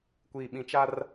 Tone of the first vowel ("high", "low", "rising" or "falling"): low